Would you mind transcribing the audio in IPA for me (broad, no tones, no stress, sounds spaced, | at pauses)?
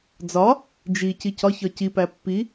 d͡z ɒ | d͡ʒ i c i c ɒ ç ɒ c i p æ pː i